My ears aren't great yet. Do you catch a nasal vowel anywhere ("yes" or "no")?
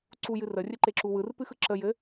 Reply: no